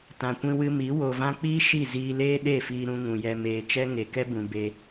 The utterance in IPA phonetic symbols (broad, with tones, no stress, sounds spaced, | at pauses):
t ã˨ kʷ ĩ˧ w ɨ˧ m i˨˦ w o˨ v ã˧ k͡p iː˦ ʃ i˦˨ z iː˧ l eː˦ ɗ e˦˨ f iː˧ ɾ ũ˧ ŋ ũ˨ j ɛ˧ m eː˨ t͡ʃ ɛ˦ ŋ e˨ k ɛ˦ b ũ˨ b e˧